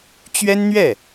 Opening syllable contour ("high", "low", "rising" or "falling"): high